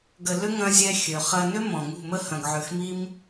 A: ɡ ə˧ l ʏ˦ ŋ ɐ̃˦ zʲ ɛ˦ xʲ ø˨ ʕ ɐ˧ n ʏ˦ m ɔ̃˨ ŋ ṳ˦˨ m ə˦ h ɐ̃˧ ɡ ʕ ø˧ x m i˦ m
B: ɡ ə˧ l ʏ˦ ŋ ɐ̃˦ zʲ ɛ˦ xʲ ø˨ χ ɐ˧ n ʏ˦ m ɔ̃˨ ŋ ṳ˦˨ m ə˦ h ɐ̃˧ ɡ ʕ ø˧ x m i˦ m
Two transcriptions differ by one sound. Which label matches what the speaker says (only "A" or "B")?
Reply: B